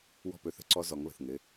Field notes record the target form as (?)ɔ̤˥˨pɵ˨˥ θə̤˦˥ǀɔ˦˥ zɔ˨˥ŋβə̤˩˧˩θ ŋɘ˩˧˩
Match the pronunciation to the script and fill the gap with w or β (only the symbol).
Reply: w